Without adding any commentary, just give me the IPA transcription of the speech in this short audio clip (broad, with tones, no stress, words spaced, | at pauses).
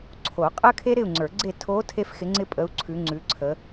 ǀʰo˨˩˦qʼə˥kʰe˥ ɾɪ˥˨u̯ŋ͡ǀə˞˨˩˦ɡ͡ǀe˥˨ tʰo˧˥ tʰe˥fxɪ˧˥ ŋ͡ǀɪ˥pʼə˧˥u̯ ǀʰʉ˧˥ŋ͡ǀʉ˧˥ǀʰə˧˥